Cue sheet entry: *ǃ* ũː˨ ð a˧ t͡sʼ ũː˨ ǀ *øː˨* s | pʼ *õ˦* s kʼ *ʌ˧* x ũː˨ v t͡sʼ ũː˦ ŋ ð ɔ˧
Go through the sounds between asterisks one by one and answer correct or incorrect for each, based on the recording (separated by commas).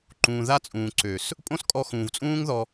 correct, correct, correct, incorrect